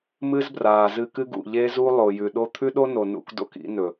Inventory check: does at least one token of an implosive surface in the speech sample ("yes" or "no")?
yes